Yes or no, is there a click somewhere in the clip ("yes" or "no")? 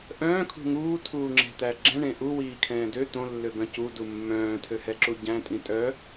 yes